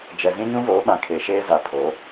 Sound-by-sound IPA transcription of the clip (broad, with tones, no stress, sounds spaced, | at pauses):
d͡ʒ ɛ˨ z ĩ˦ ɲ ũ˦ v oː˨˦ ɓ ã˨ kʰ e˨ ʃ eː˦ z a˨ pʰ o˨˦